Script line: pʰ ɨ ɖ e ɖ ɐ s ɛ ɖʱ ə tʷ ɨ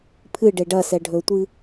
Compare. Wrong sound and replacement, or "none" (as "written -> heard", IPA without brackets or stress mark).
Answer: ə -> ɵ